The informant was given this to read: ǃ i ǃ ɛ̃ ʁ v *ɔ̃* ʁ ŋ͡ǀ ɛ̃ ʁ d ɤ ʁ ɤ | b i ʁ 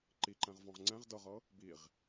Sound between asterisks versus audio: correct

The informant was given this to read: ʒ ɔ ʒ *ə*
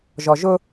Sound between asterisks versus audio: incorrect: ʊ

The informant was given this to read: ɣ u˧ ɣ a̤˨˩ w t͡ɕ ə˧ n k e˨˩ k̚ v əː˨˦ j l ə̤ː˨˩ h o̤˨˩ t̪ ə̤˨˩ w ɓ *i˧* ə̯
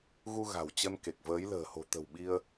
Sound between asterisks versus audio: correct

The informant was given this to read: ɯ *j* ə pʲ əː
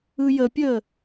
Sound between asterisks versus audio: correct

